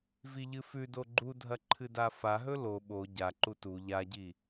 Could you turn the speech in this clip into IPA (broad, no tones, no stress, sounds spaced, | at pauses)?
v i ʎ ɨ f ʉ d o ɡ͡ǃ u dʱ ɐ ǃʰ ɨ d a f a ɦ ɵ l o ɓ o ɟ a ǃ u t u ʎ a ɟ i